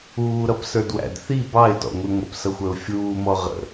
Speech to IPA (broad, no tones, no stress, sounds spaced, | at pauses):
uː ɾ ʌ p s ə˞ d w æ̰ d θ i b ɑ ɪ̯ t ɔ̰ ŋʷ i ŋʷ ə̰ p s ʌ xʷ ə˞ ʊ̯ fʲ uː m ɔ ʁ ə̰